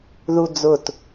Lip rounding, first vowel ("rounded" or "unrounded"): rounded